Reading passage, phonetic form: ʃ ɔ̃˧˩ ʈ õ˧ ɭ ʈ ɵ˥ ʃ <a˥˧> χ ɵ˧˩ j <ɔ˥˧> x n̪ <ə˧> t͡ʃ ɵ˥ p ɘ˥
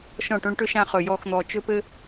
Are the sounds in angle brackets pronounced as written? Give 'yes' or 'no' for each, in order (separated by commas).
no, yes, no